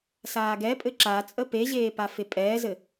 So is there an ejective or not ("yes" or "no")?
yes